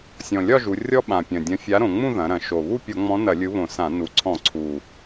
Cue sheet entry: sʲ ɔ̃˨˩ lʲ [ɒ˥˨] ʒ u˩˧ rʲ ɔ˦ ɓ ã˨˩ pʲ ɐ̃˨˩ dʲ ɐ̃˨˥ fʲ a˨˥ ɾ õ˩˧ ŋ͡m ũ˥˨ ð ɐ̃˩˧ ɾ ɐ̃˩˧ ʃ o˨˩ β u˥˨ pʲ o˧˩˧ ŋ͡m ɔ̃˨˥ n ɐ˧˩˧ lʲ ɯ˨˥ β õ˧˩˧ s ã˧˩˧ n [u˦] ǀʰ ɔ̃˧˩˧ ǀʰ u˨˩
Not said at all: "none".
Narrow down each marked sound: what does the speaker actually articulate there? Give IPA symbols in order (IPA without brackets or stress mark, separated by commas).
ɒ˥˨, u˨˩